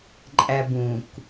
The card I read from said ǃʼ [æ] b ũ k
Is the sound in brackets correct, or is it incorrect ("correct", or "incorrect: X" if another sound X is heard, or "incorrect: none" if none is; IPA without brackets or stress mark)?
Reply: correct